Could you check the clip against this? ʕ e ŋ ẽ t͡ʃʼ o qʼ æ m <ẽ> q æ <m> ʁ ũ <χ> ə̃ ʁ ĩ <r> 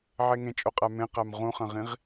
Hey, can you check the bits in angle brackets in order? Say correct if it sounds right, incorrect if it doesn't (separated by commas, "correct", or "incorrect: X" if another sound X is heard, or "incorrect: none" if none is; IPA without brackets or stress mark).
correct, correct, correct, incorrect: ʁ